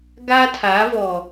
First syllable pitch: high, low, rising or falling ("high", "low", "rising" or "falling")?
high